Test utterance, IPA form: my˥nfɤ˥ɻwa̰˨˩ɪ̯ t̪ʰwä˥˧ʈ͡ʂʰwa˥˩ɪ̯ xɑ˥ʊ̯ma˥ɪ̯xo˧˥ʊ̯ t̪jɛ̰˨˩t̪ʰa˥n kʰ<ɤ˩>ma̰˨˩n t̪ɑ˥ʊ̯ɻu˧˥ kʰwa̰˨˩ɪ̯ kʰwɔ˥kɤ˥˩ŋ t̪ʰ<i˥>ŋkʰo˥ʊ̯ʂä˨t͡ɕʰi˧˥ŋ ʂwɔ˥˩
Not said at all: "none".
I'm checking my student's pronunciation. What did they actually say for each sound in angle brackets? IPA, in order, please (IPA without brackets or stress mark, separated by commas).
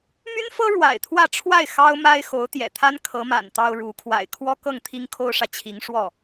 ɤ˧˥, i˥